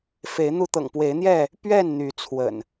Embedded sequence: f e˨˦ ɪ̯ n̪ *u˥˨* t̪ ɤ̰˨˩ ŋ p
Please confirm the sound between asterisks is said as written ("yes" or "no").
no